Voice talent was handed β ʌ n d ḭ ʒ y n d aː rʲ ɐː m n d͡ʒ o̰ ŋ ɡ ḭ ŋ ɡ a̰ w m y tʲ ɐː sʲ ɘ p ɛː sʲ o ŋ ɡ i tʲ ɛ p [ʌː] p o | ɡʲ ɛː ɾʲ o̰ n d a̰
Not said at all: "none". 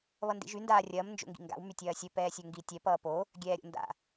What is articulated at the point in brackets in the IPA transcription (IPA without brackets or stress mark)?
ʌː